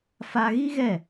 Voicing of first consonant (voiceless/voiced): voiceless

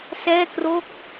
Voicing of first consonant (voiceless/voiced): voiceless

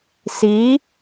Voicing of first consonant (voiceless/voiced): voiceless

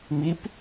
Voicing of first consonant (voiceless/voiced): voiced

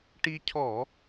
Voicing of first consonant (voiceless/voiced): voiceless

